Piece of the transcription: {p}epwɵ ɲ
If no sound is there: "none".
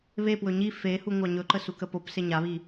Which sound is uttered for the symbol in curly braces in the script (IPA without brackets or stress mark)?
β